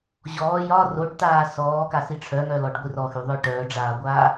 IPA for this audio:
ʑ ɔː j ɒ r o ɖ t aː s ɔː k a s i ʈ͡ʂʰ œ ŋ œ l ɔ ɖ ɡʷ i r ɔ x y ðˤ œ ʈ œː ɖ͡ʐ aː ɡʷ aː

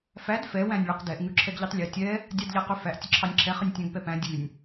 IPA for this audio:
f æ d f ɛ w æ̃ nʲ ɭ e q d ɛ ʔ ŋ ʉ ǁʰ ɛ ɡ ʎ ʉ tˤ lʲ ø tʲ ɛ | dʲ ɑ d ʎ æ q ø f æ ʔ tʲ ə ǁʰ ɑ nʲ ǁʰ ɛ χ ə nʲ tʲ æ̃ ɡ p ɛ p æ̃ dʲ ʉ nʲ

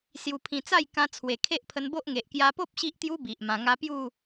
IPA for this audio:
s j u˧ pʰ ĩ˧ t͡s a˥˧ j k ã˧ t͡sʰ w e˨˩ kʰ e˦ ʔ pʰ ə˧ n b o˦ ʔ ŋ e˨ ʔ k j a˧ p o˦ p̚ ɕ i˦ ʔ t̪ j u˦ b i˨ ʔ m ã˧ ŋ a˦ p j u˥˧

